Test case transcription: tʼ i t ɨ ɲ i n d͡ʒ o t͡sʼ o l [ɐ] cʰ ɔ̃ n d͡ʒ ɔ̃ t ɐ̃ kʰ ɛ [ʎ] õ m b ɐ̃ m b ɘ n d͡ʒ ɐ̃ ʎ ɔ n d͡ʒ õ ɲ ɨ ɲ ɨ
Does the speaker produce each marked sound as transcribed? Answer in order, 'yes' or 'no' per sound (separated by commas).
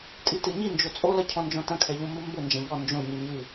yes, yes